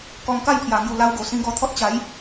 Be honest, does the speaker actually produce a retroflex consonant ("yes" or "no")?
no